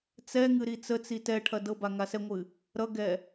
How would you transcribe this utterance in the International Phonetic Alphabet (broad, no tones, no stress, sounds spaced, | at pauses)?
t͡s ɛ ŋ ɨ ɾ i t͡s ə t͡s i t ɛ ʈʰ ɐ d ɤ b a ŋ a s ɛ ŋʷ ɨ | ɾ ʌ ɡ ɛ